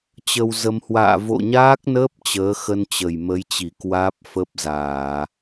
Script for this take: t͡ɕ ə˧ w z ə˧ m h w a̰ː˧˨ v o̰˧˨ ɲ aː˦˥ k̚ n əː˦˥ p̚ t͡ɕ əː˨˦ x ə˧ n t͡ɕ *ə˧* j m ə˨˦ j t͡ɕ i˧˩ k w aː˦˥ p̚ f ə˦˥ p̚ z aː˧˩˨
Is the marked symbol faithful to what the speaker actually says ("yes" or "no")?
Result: no